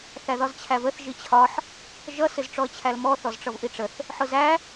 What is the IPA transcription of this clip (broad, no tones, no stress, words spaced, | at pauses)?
θæðɒzt͡ɕʰævəθ ʒit͡ɕʰɒħ | ʒʌ sɪzʈ͡ʂɔə̯t͡ɕʰælmɔ θɔzʈ͡ʂʌvʔiʈ͡ʂəθ | ħʊzæ